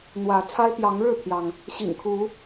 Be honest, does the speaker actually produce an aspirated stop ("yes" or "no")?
yes